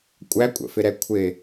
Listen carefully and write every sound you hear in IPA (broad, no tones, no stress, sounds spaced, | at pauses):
kʷʼ æ kʷʼ ə̰ f ɪ ɾ ɛ kʷʰ ɪ